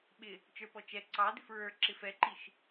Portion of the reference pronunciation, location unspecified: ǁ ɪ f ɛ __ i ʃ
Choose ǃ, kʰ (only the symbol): ǃ